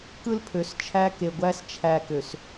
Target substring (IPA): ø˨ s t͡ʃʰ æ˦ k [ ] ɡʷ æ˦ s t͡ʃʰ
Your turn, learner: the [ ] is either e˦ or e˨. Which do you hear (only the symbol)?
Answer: e˨